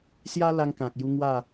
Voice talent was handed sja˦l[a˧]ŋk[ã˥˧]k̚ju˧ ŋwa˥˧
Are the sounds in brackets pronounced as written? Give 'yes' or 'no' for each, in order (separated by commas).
yes, no